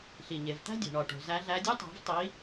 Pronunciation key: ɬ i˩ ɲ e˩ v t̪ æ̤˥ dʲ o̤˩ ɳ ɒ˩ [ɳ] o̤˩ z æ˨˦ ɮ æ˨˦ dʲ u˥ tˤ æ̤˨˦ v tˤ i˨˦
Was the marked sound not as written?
yes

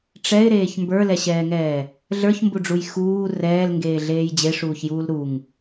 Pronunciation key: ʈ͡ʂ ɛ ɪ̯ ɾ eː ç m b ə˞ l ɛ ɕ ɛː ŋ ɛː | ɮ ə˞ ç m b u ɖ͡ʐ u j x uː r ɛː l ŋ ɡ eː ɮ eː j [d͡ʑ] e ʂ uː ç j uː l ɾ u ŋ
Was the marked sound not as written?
no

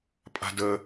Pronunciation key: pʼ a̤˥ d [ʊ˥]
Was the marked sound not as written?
yes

